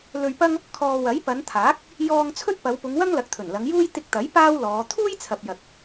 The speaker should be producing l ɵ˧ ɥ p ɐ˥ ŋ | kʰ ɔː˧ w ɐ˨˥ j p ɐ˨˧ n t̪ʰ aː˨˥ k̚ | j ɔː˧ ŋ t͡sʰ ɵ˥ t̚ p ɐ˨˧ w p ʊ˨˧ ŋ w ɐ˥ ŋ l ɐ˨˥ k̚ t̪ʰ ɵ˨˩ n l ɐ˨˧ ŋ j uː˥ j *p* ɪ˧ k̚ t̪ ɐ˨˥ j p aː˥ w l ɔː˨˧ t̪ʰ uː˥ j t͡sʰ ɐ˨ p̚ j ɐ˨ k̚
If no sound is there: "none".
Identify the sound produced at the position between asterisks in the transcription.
t̪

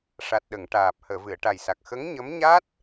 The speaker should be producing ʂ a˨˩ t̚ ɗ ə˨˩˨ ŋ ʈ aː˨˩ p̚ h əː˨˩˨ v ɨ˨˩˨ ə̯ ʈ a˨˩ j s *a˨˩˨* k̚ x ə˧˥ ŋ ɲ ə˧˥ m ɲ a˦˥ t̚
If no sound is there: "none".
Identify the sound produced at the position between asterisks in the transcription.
a˨˩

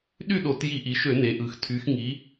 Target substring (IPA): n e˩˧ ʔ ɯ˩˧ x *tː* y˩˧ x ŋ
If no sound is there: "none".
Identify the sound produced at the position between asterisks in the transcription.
tʰ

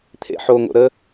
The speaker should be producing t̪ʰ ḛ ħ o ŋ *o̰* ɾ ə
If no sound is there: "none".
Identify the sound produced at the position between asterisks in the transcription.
o̰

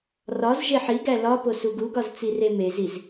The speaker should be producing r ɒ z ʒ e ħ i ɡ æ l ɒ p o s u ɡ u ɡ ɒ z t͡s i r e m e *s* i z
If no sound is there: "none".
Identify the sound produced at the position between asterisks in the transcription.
z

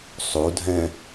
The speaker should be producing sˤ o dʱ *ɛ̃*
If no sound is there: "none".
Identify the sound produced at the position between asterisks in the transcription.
ɛ̃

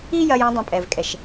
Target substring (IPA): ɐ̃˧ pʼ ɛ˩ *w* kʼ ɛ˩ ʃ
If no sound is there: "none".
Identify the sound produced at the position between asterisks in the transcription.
v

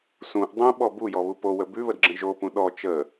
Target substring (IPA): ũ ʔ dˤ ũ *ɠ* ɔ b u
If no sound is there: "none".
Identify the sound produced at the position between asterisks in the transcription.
ɓ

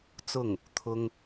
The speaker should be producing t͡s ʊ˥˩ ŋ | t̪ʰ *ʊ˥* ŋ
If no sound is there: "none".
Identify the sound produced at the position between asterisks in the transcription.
ʊ˥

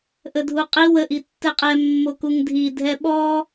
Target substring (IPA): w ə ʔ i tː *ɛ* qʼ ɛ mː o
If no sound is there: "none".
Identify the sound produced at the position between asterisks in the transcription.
ɛ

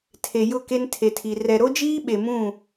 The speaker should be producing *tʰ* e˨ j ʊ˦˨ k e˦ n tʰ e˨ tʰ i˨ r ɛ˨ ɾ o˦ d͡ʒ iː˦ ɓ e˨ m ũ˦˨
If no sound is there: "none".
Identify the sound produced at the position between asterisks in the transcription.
tʰ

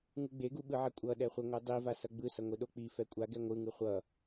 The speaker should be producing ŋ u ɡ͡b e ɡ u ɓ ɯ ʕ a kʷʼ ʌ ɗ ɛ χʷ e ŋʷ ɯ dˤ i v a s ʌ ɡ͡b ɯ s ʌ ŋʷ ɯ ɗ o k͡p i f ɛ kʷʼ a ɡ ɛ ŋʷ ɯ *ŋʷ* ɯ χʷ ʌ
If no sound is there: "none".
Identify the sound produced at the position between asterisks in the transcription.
ŋ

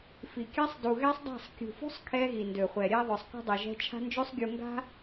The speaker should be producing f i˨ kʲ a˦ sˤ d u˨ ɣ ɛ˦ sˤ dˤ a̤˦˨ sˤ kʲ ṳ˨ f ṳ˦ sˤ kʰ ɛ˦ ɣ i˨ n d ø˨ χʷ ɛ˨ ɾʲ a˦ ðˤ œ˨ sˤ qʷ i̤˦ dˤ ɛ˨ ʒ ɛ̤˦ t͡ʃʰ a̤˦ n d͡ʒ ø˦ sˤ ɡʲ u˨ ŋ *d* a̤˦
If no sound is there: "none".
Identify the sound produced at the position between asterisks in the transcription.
ɡ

